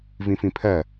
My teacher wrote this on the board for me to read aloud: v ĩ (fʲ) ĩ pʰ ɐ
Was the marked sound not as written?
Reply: yes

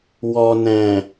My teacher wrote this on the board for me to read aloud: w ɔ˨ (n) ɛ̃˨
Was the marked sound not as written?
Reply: no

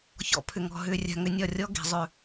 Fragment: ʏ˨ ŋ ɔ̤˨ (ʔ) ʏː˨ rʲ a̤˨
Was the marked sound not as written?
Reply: yes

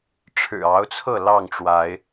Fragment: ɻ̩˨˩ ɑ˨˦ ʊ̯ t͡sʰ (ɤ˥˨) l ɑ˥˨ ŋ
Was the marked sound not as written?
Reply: no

